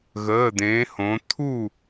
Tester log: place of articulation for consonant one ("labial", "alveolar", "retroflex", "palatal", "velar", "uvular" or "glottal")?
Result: velar